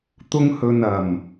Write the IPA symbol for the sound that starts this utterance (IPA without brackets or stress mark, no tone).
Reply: t̪